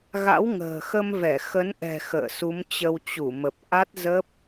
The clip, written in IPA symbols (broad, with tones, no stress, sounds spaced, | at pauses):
ɣ a̰˧˥ w ŋ ə̤ː˨˩ x ə˧ m v ɛ˧˩ x ə˨˦ n ʔ ɛ̤˨˩ x ə̰ː˧˨ s u˨˦ m t͡ɕ ə˧ w t͡ɕ u˧˩ m ə˨˩ p̚ ʔ a˦˥ t̚ z ə˦˥ p̚